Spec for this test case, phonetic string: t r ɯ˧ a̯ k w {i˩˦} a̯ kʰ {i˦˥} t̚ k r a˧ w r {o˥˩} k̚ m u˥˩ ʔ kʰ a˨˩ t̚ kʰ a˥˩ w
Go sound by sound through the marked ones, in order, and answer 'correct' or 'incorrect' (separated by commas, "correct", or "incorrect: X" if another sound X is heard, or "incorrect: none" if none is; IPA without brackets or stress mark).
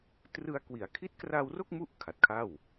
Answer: correct, correct, correct